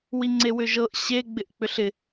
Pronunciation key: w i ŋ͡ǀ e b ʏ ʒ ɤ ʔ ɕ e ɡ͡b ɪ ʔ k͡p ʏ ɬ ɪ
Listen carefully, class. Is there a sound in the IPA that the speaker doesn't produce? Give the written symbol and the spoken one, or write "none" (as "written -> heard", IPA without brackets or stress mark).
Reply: b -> w